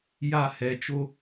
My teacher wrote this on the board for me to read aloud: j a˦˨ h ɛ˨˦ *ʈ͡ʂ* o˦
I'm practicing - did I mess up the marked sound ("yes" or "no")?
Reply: yes